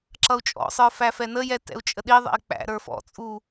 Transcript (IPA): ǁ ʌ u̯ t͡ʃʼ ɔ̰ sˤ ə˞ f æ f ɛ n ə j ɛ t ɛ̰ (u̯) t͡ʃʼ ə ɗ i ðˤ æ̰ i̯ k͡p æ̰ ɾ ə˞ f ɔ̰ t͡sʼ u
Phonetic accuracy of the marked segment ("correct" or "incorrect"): correct